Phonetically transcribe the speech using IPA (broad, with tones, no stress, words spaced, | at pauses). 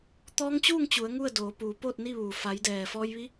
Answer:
t̪ɔː˧˥ŋt͡ɕuː˥˨ŋt͡ɕu˩˧ə̯ ŋu˥˨ə̯doː˩˧ puː˩˧poː˥˨t̚ni˥˨ʋuː˩ fa˩˧jdɛː˩fɔː˧jʋi˧˥